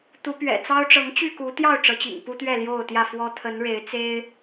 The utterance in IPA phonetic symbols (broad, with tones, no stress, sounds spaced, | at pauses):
t̪ u˨˦ p ɥ ɛ̰˨˩ t͡s ɑ˦ ʊ̯ ʈ͡ʂ ɤ˨˦ ŋ t͡ɕ y˥˨ k u˨˦ t̪ j ɑ˥˨ ʊ̯ ʈ͡ʂ ɤ˨˦ t͡ɕ ḭ˨˩ ŋ p u˦ t̪ ɥ ɛ˥˨ l j o˥˨ ʊ̯ t̪ j ä˥˨ f w ɔ˦ t̪ʰ ə˨˦ n ɻ e˨˦ ɪ̯ t͡s e˦ ɪ̯